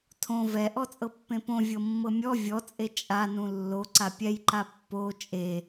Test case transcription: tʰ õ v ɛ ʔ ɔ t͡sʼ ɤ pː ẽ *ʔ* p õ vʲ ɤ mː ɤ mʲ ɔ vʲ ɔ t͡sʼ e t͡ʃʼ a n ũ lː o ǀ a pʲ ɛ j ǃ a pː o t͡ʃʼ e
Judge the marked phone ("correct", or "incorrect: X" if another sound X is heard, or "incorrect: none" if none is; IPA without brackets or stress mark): incorrect: none